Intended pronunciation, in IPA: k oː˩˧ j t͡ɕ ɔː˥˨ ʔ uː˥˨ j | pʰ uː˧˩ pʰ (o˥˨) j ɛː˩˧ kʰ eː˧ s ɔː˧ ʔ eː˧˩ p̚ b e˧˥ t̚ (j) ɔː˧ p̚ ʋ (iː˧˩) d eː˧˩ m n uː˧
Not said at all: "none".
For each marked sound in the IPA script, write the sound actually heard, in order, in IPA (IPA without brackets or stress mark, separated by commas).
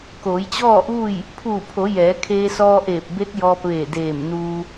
o˩˧, j, eː˧˩